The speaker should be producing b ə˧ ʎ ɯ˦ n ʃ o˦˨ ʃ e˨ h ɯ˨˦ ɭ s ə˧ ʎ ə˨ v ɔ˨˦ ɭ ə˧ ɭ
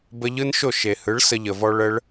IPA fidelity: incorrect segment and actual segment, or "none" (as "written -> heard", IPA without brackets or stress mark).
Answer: ɔ˨˦ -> ɔ˧